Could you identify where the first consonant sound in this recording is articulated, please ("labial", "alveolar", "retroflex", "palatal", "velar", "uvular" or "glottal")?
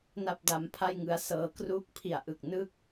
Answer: alveolar